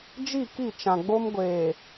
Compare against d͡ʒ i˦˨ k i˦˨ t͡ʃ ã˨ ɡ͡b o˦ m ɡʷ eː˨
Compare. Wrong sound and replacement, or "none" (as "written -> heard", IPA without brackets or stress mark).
none